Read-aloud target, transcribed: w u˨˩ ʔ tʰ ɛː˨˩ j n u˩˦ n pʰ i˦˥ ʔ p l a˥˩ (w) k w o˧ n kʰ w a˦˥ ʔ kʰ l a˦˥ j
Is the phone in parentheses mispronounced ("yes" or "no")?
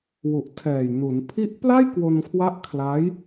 yes